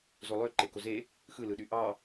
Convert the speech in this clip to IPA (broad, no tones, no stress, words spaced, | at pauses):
zolˠø ǃekoze | xɯlɯɗy ʔɑ